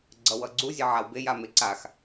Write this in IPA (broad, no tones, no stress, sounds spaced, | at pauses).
ɡ͡ǀ ʌ w ʌ ɡ͡ǀ u zʲ e ʕ a w b e j a m e ǀ a x